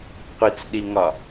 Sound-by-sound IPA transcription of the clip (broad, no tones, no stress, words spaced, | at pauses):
qʷit͡sɗiŋɒ